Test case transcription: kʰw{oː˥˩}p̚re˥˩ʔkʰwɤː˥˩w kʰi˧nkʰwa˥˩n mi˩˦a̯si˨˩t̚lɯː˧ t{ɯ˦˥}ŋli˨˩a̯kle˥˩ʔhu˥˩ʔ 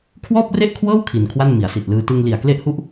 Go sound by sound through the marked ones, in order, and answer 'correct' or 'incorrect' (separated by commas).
incorrect, incorrect